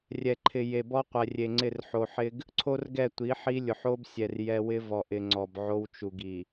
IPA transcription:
rʲ ɛ˨ ǃʰ ɪ˨ j e˨ b ɔ˦ qʷ ɛ˨ rʲ e˨ ŋ͡ǀ ɪ˦˨ r ħ o˨ ħ ɪ˦ ɡ | ǀʰ o˦ r ɡ ɛ˦˨ tʷ i˨˦ ħ i˦ lʲ ʊ˨ ħ o˦ b sʲ ɛ˨ r j ɛ˦ w ɪ˦ v ɔ˨ ʔ ɪ˨ ŋ͡ǀ ɔ˨ b ʕ o˦ w t͡ʃ u˨ ɡ i˨

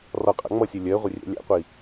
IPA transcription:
r ɒ qʼ a̰ ŋ͡m ʌ sʲ ɜ lʲ ɜ ʁʷ e rʲ æ̰ lʲ æ̰ qʷ i

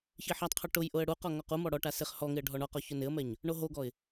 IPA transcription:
ç i ħ a tˤ qʰ o ʈ ʊ j ʔ ʊ ə̯ ɽ u q ɔ ŋ ɔ q u m ɔ ɽ ɔ ʈ a s ɪ χ h ɔ ŋ ɪ ə̯ ɖʱ ɔ ɳ ɔ q ɔ ç ʊ n ɪ ə̯ m ɛ ɲ | ɳ o ɦ o ɡ ɔ ɪ̯

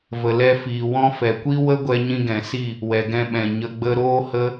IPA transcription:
v ə˨ l ɛ˧ f iː˨ w ɔ̃˦ f ɛ˨ kʷ i˦ w ə˦ ɡʷ ɛ˧ ɲ ĩ˧ ɡ ɛ̃˨ s i˦˨ | w ɛ˨ ɡ ɛ̃˧ ɓ ɛ̃˨ ɲ ə˧ ɡ͡b ə˦ ɾ oː˦ h ə˦

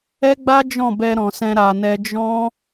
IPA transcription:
ɛ˦ ɡ͡b a˦ d͡ʒ ɔ̃˦˨ b ɛ˧ ɾ ɔ̃˨ s ɛ̃˧ ɾ a˨ n ɛ˧ d͡ʒ ɔ̃˦

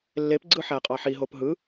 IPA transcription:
lː e p ɡ͡ǀ ɯ ħ æ qʼ ɑ ħ i ɦ o p ɦ ɯ

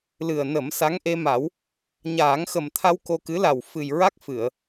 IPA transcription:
l ɨ˨˩ ə̯ n ə˨˩˦ m s a˧˥ ŋ ʔ e˧ m a˨˩˦ w | ɲ aː˨˩˦ ŋ x ə˨˩ m t̪ʰ a˧ w k o˧ k ɨ˧˥ l a˨˩ w f ɨ˨˩ j ɹ a˦˥ k̚ f ɨ˨˩˨ ə̯

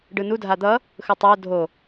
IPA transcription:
ɖ ɯ n u dʱ a d̪ ʌ | x ɯ tˤ ɛ ʊ̯ dʱ o

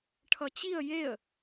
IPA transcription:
ʈʰ ʌ t͡ɕ i ə̯ j e ə̯

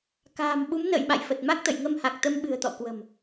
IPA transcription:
k a̤ː˨˩ m ɓ u˨˦ m n ə̰ː˧˨ j ɓ a̰˧˨ j f ə˨˩ t̚ m a˦˥ k̚ t̪ ə̰˧˨ j ŋ ə˧ m h a˨˩ k̚ t̪ ə˧ m ɓ ɨ̤˨˩ ə̯ t̪ ɔ̰˧˨ k w ə̤˨˩ m

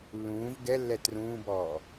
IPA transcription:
lː ũː v ɡ ɛ lː ɛ t r ũː b ɔː

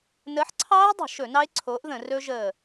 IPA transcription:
n əː˨˥ ħ ǀʰ ɑː˦˥ ɪ̯ dˤ ə̤˧˩˧ ʃ ɵ˧˩˧ n ɑ˦˥ ɪ̯ ǀʰ oː˨˥ ʔ ð ə̃˧˩˧ r ɵ˦˥ ʒ əː˦˨

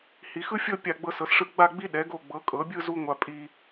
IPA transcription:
h i˩˧ x ɯ˥ fʲ ɤ˥˧ pʲ a˧˩ ɡ͡b ɤ˧ s ɤ˩˧ s ʂ ɯ˧˩ ɡ͡b a˥˧ ɡ͡b i˥ ɗ ɛ˩˧ ɡ o˧˩ ɡ͡b ɤ˩˧ kʼ ɤ˩˧ bʲ ɯ˥˧ z u˧ ŋʷ a˧ pʼ i˧

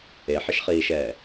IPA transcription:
e ħ ɪ ʃ χ iː ʃ ɛː

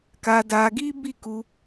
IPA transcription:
k a˧ d a˧ ɡ i˦ b i˦˨ k u˧

